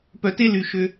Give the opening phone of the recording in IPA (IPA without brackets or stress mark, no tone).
p